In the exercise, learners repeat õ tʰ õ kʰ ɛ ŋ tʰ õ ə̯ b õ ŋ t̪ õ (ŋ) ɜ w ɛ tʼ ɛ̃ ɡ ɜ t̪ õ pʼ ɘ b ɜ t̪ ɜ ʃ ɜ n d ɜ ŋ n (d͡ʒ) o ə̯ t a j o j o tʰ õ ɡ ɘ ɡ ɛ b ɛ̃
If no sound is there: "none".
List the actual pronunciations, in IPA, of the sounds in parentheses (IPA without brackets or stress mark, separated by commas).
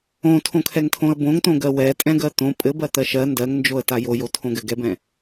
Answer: ɡ, d͡ʒ